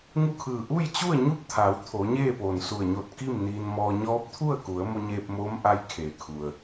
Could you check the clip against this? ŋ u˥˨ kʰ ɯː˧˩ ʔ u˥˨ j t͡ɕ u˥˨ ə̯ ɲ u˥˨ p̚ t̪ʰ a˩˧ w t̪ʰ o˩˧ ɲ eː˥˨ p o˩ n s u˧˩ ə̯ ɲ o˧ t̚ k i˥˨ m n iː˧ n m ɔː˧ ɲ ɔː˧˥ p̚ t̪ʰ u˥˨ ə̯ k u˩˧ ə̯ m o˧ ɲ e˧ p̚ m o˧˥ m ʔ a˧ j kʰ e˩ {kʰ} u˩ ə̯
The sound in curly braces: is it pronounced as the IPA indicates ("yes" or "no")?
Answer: yes